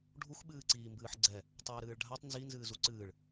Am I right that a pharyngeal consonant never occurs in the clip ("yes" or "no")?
no